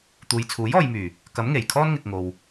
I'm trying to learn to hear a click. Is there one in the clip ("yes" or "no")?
no